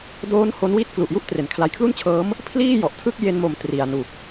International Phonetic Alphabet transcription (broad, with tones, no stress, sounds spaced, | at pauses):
d oː˦˥ n h o˦˥ n w i˥˩ t̚ k l u˨˩ ʔ j u˥˩ ʔ t r e˩˦ n kʰ l a˨˩ j kʰ l u˥˩ n t͡ɕʰ ɤː˦˥ m | pʰ l iː˥˩ j ɔ˨˩ ʔ tʰ ɯ˥˩ k̚ j e˧ n m o˨˩ m t r i˨˩ a̯ n u˨˩ k̚